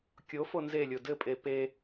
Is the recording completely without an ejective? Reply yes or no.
no